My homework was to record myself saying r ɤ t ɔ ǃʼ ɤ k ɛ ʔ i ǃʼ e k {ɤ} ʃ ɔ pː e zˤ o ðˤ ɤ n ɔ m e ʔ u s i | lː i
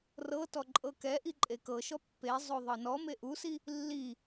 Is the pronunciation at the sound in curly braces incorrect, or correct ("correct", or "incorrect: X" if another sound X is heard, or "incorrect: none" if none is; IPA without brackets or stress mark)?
correct